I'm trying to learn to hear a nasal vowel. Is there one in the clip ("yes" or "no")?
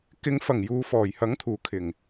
no